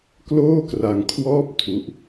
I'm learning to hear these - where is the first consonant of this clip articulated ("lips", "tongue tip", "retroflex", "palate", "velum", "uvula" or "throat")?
velum